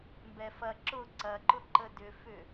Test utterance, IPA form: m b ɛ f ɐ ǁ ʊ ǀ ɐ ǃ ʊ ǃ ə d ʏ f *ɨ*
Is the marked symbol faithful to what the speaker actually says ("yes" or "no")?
no